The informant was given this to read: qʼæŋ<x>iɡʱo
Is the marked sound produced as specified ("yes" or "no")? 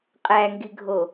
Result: no